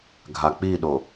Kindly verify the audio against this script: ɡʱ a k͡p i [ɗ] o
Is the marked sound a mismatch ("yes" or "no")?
no